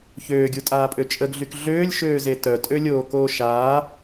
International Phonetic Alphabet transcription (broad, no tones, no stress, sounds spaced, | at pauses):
ç øː ɡʲ u tʼ aː pʼ ø t͡ʃʼ ə ɡ ɮ y k ɮ øː lʲ ʃ øː z e t œ tʼ ø lʲ oː k oː ʃ aː